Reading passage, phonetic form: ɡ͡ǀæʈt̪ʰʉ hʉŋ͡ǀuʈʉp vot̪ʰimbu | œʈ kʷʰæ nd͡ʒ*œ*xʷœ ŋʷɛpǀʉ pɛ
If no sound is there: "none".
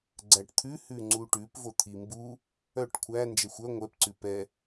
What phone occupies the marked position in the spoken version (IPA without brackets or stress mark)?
ɛ